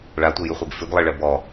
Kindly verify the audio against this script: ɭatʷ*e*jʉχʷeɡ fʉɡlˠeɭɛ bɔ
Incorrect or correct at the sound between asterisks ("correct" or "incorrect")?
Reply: correct